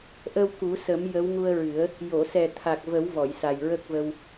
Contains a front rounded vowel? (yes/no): no